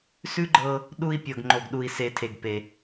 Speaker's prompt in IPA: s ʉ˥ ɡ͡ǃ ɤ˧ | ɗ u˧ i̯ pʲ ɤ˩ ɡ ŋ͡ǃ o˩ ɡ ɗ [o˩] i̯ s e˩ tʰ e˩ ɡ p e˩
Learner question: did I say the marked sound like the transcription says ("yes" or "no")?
no